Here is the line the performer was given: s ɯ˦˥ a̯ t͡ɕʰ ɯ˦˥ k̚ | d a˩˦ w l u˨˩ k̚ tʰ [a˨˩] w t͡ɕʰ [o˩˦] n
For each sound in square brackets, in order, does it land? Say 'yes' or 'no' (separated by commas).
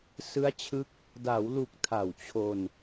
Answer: yes, no